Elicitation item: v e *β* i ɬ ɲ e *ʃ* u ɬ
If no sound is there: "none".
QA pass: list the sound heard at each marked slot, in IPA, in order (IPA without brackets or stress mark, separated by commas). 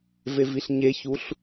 v, ç